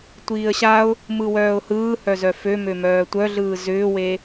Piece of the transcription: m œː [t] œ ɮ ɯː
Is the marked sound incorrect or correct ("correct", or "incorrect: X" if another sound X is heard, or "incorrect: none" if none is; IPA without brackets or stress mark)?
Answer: incorrect: tʷ